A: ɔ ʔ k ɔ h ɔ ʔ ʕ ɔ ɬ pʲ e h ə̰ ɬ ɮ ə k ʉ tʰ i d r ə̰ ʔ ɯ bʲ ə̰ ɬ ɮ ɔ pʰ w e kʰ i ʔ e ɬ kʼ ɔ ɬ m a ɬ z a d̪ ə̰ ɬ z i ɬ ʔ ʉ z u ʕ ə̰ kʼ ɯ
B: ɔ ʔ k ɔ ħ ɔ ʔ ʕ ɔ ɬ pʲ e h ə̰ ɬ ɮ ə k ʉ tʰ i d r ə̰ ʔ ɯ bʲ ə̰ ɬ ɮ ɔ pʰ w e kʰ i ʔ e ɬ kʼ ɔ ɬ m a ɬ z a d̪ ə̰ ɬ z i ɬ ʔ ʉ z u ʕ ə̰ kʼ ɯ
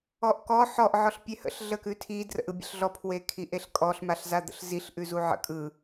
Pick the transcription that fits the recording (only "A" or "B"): B